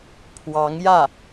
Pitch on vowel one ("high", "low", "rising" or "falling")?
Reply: rising